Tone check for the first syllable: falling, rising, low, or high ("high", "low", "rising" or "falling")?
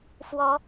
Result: rising